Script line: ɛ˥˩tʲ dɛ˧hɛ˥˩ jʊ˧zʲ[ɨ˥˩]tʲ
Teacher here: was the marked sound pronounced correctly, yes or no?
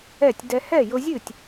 yes